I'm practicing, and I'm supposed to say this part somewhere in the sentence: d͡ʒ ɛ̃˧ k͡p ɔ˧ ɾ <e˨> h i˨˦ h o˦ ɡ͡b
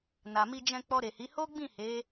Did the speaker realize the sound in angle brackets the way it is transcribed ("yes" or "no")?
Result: yes